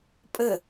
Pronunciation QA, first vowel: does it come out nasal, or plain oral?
oral